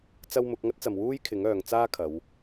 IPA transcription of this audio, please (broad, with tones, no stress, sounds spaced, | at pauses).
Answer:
t͡s ɐ˥ w m ʊ˨˥ k̚ ŋ ɐ˥ t̚ t͡s ɐ˨ m w uː˥ j kʰ ɪ˨˥ ŋ œː˨ ŋ t͡s aː˥ kʰ ɐ˨˧ w